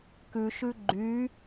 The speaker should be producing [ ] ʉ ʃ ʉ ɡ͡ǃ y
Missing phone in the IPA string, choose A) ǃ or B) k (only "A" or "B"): B